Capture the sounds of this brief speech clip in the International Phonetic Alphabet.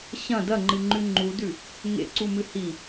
ɕɐ̃ dɐŋ͡ǃɨŋ͡ǃʉ ŋ͡ǃudʉ | ŋḛǀumɨ hi

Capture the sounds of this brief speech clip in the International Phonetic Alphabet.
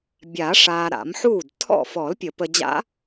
bʲaː˨˩˦ʂaː˨ ɾa̰˨˩˦mħuː˥˩d tʰɔ̰˥˩ fɔ˨˩˦lpʲə˨˩˦pə˨d͡ʑa̰˧˥

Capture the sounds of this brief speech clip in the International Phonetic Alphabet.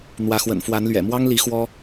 n̪wä˨˦xwə̰˨˩nfwa˨˦nlɥɛ̰˨˩ mwɑ˦ŋli˨˦ xwɔ˦

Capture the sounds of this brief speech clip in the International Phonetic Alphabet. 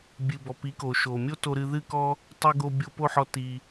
bʲɨ˩bɔ˩ pi˩˥ko˩ʃo˩ mʲo˥to˧ ɾɨ˧ðɨ˥˩kɔ˥ | tˤi˧ɡo˧ bʲo˧ po˥˩ħɔ˧ ti˩

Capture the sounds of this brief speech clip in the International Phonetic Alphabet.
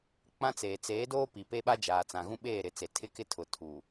k͡pã˦t͡seː˨ t͡seː˨˦doː˦pi˨ pe˦ɓa˦ d͡ʒaː˨t͡sã˨ ɣũ˦ɓeː˦˨ɾɪ˨˦t͡se˨ tʰɪ˦kɪ˦tʰʊ˨ tʰu˨

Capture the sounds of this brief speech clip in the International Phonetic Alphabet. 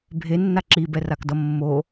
bʱenːa ǁibɛrakdʌ mːo

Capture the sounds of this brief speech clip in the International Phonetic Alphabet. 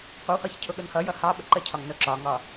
qʷəwhɒç cʰʊɠʊnhʌjʌ hɑɓə ǃəcʰɒŋ nʊǁɒŋɒ

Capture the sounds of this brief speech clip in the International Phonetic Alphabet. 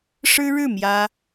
ʂɻ̩˥ɻɻ̩˥˩ mjä˥

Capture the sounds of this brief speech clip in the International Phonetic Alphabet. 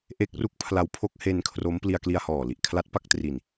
ʔe˦˥k̚ru˦˥k̚pʰla˦˥wpʰo˦˥k̚ he˧n kʰro˦˥m pli˧a̯kli˧a̯hɔː˨˩li˨˩ʔ kʰla˦˥t̚pa˥˩k̚tri˧n

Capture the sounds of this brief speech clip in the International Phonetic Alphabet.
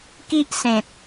ki˦ʔsẽ˨t̚

